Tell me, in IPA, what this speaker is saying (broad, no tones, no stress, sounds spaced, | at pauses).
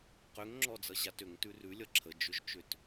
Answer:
q ʏ ŋ ŋ͡ǁ ɔ d͡z ʌ ʑ a t ʏ ŋ t ʉ r ʉ lʲ ʌ ǁʰ ə d͡ʒ ʏ ʒ t͡ʃ ʏ t